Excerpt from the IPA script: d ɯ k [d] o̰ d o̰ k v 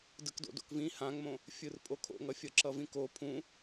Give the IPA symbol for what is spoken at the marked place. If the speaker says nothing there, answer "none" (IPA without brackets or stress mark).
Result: d